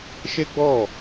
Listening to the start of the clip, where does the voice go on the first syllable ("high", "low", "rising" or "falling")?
high